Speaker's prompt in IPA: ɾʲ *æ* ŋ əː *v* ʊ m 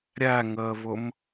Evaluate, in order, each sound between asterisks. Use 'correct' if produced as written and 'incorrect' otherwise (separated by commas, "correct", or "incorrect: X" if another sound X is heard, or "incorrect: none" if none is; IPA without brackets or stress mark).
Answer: correct, correct